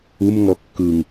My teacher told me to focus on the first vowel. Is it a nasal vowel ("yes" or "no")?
no